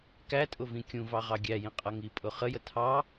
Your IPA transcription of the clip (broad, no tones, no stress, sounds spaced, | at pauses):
k æ tʼ ʊ v ĩ kʲ ũ v ɑ ʁ ɑ ɡʲ æ j ĩ qʼ ʌ ŋ i pʼ ʊ χ ə j ə tʰ ɑ